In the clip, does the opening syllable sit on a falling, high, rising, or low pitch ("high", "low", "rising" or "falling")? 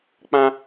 high